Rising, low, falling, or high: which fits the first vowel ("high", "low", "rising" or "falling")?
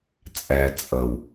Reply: low